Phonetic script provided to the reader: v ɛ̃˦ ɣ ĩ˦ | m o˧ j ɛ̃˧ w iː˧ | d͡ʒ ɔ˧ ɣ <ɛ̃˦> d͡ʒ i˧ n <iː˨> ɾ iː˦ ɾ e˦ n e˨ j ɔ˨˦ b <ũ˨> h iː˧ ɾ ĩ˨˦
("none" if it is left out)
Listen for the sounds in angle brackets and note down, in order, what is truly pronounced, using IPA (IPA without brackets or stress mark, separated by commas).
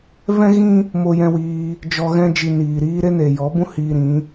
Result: ɛ̃˦, iː˨, ũ˦